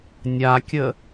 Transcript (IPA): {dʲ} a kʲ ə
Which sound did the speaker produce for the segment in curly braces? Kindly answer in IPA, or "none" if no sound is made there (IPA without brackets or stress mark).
nʲ